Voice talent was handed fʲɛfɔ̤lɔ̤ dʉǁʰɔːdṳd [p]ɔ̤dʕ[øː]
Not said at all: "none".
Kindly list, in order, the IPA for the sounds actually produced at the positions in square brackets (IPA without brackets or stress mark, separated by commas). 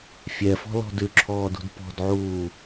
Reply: p, uː